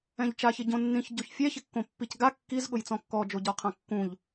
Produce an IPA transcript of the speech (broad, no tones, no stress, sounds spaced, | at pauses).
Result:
ɛ̃ ʎ t͡ʃ a ç ɪ ɟ õ nː ĩ ç ɟ o ç fʲ ɛ ç ɪ kː õ pː i c ɡ a kː i z ɠ ʊ j t͡s ɔ̃ kː ɔ d͡ʒ o ɟ ɔ qʰ ã kː ũ ʎ